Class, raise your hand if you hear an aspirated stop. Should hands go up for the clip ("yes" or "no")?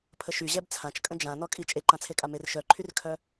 yes